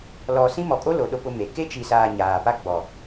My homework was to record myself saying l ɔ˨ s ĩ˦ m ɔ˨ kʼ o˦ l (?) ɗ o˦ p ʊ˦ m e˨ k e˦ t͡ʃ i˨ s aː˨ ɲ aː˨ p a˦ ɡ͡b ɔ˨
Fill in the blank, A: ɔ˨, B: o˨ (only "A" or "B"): B